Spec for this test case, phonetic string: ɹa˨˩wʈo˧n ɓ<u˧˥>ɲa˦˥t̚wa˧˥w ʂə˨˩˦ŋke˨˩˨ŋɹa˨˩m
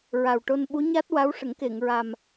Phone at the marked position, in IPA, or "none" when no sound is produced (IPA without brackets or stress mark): u˧˥